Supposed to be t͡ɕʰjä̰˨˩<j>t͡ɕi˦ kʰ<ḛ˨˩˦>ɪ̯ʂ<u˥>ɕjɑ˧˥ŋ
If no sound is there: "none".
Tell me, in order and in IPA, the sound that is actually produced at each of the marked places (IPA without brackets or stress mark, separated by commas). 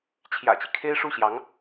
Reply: none, e˥, u˥˩